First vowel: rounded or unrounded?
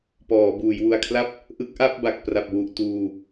rounded